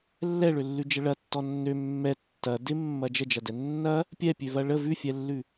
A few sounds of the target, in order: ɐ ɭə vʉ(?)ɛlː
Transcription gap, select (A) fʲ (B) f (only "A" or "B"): A